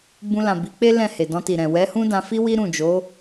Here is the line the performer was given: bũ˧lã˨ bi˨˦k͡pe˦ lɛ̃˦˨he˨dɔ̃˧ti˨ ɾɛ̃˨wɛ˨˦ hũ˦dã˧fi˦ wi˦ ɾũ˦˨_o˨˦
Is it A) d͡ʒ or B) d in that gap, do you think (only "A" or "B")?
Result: A